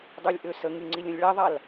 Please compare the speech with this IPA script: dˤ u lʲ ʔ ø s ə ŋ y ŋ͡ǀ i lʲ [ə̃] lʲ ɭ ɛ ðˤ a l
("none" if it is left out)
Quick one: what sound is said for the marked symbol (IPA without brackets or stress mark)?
ə̃